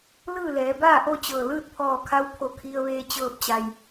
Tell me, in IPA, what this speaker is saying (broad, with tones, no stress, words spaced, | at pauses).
lɯː˥˨lɛː˩˧baː˥˨ʔo˥˨ t͡ɕɤː˧˩ lɯː˥˨t̚pʰɔː˧˩kʰa˧w pʰo˧˩kʰi˧ə̯ʋeː˧ t͡ɕɤː˧˩p̚t͡ɕa˩j